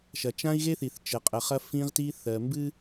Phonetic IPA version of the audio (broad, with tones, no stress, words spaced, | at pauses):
ʃɐ˨t͡ʃã˦i̯ɣe˦θi˨θ t͡ʃə˨qʼə˨ χɐ˦fĩ˦ʁti˦θɜ˨ mbɨ˦